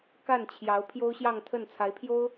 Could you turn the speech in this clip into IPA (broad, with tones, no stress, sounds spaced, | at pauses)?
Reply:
k a˥˩ n t͡ɕʰ j ɑ˧˥ ʊ̯ pʰ j o˥ ʊ̯ ɕ j ɑ˥˧ ŋ t̪ʰ ə˥˩ n t͡sʰ a˧˥ ɪ̯ pʰ j o˥ ʊ̯